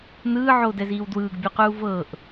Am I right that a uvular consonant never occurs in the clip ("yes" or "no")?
no